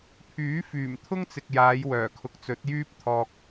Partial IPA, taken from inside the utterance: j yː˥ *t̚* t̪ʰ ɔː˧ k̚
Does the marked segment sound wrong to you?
yes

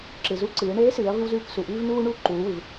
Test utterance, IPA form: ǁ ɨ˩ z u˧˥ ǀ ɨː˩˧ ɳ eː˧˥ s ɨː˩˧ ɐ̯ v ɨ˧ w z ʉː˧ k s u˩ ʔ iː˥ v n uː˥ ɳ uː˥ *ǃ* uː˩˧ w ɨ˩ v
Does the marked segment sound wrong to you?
no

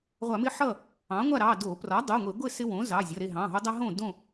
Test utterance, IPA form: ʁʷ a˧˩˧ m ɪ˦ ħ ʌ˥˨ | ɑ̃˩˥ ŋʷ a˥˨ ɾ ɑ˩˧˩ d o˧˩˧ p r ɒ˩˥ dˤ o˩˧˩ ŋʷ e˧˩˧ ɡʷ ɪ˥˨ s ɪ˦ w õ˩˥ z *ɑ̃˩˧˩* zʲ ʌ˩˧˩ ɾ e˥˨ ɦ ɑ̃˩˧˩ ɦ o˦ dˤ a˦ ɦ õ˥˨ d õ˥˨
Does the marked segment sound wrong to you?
yes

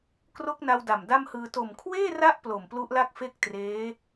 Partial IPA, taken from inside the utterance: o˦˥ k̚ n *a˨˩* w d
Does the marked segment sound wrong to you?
yes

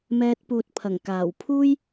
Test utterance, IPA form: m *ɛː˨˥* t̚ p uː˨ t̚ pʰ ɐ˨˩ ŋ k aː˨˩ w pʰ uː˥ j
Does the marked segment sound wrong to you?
yes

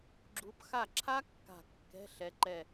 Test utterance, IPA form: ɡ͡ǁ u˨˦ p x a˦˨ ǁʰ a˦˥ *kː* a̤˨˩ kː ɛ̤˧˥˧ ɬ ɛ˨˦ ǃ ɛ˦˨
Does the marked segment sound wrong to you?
no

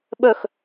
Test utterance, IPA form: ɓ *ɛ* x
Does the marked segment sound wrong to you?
yes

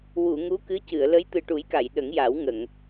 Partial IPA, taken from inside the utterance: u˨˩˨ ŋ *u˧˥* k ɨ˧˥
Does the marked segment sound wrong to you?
no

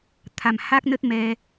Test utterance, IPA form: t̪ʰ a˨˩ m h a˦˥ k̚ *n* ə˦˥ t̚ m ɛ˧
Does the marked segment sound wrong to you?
no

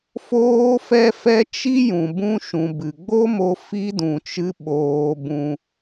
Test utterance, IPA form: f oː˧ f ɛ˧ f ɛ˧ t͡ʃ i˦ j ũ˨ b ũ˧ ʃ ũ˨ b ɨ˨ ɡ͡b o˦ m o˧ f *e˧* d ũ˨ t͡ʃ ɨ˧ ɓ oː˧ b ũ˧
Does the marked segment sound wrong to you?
yes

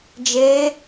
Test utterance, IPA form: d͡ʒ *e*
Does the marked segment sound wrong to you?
no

